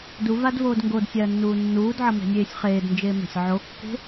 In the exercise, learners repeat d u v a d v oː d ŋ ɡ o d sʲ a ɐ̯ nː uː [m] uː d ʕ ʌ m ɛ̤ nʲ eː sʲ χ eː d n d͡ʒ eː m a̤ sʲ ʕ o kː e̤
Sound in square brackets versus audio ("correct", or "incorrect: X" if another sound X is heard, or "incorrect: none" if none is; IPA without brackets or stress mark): incorrect: nː